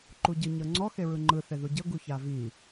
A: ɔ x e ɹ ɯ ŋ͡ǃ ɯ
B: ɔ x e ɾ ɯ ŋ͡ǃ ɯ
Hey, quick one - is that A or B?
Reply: A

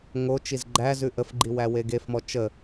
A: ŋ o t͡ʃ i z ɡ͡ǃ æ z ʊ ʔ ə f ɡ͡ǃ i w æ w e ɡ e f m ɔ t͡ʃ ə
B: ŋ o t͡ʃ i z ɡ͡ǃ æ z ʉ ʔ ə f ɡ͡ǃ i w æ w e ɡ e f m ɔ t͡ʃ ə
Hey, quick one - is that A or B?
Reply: B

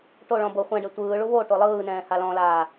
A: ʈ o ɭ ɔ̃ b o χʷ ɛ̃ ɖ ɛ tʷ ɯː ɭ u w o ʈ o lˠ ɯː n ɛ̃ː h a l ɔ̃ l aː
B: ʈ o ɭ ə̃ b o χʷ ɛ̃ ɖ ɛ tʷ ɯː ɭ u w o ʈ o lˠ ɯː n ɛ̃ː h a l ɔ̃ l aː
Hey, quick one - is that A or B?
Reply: A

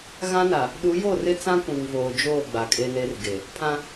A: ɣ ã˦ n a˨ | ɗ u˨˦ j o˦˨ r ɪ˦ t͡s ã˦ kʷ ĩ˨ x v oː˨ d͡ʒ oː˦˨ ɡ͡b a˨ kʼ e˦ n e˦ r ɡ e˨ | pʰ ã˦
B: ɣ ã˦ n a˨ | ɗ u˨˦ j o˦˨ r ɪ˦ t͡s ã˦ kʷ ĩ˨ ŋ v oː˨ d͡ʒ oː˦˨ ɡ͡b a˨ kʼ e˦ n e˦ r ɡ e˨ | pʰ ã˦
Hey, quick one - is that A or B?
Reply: B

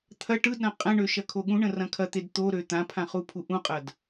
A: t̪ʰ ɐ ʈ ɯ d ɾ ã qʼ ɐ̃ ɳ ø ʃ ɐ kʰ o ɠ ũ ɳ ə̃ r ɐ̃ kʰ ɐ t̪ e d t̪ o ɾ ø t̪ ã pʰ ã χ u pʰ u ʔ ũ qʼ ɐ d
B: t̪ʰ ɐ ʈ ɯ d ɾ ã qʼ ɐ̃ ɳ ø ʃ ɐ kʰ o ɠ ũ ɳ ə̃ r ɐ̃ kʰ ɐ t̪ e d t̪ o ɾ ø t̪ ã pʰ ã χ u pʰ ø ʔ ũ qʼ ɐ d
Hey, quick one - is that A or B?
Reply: A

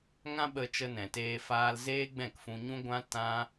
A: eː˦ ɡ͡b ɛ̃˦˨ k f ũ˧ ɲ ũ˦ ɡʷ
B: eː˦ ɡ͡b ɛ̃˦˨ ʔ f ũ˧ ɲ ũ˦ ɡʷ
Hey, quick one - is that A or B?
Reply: A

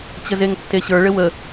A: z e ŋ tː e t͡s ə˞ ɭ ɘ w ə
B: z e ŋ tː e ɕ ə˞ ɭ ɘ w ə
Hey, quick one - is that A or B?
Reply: B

